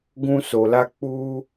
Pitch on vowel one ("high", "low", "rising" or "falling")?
high